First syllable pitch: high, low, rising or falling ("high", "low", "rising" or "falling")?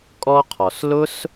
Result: high